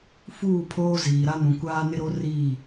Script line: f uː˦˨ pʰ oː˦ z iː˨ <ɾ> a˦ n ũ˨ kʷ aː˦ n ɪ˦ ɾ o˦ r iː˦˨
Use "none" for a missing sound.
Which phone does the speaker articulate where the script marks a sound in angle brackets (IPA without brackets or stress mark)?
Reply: ɾ